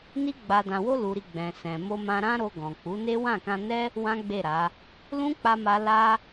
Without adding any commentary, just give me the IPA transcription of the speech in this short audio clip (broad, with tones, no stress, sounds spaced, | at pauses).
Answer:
n i˧ ɡ͡b a˨ d ã˨ w o˧ l u˨ ɾ i˨ ɡ͡b ɛ̃˨ s ɛ̃˨ m o˧ m ã˧ ɾ ã˦ ɾ o˧ ɡ ɔ̃˨ k͡p u˨˦ n e˦ w ã˦˨ k ã˧ n ɛ˦ | w ã˦ ɡ͡b e˦˨ ɾ a˨˦ | l ũ˦ k͡p a˧ m a˧ l a˧